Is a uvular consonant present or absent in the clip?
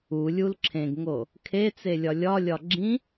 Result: absent